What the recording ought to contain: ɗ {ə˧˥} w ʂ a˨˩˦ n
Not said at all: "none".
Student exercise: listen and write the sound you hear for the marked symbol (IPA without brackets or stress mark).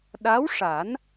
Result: a˧˥